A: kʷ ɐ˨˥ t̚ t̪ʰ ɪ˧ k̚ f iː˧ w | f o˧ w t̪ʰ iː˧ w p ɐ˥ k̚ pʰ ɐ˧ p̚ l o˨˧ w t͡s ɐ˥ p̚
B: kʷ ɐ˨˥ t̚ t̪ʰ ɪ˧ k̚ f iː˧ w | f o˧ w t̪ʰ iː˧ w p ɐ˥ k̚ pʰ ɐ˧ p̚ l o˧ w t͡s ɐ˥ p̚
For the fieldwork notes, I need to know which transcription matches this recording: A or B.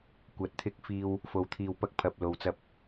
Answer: B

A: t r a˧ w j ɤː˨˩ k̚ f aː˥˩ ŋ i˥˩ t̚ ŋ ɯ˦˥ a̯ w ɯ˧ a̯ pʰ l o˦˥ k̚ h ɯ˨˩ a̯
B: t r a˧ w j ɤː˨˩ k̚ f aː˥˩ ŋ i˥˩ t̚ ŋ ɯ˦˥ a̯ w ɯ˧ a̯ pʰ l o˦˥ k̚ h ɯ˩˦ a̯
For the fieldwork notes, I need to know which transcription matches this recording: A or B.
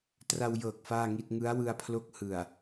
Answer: A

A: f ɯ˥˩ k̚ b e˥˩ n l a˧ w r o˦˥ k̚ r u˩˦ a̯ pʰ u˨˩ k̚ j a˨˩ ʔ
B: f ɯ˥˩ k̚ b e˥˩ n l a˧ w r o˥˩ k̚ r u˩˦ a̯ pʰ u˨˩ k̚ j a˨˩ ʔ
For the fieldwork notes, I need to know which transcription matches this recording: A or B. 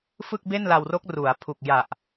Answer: A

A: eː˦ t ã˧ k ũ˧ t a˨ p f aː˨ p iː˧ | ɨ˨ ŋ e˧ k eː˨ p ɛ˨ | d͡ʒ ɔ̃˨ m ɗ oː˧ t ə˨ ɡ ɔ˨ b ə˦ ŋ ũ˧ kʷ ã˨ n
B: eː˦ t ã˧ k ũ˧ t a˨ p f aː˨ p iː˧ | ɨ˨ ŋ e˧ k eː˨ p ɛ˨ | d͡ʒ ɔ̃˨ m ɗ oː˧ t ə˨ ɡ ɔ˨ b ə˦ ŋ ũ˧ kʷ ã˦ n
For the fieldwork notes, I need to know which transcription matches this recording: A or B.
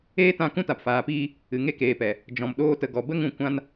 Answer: B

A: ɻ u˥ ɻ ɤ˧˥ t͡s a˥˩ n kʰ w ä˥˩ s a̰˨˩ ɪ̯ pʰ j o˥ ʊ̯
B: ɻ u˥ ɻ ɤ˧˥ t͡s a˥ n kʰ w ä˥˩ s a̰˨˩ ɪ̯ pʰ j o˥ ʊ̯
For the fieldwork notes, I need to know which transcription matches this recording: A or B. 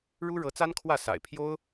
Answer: B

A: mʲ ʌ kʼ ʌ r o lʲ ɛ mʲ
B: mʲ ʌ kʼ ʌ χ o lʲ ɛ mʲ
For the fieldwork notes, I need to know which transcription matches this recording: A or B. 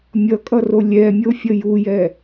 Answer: A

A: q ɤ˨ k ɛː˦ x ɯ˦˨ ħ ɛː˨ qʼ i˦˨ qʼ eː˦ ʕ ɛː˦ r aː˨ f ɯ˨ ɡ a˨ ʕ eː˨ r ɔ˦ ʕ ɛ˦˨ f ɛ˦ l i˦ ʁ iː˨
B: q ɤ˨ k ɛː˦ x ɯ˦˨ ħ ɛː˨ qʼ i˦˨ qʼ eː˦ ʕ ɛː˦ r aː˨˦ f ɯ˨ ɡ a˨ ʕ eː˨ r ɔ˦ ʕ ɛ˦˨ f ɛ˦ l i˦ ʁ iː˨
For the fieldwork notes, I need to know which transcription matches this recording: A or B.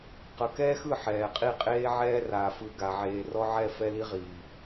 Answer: A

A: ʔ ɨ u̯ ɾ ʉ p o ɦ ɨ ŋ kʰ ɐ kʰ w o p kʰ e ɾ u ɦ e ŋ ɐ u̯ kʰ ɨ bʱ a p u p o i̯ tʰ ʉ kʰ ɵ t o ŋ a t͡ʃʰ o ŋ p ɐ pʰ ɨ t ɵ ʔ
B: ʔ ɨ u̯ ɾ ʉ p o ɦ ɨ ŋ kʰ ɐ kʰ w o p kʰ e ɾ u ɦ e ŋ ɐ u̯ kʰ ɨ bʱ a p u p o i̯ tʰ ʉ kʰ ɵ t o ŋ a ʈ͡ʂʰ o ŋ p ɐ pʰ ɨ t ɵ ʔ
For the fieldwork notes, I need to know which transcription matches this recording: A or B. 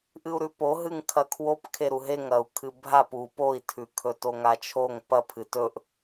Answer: A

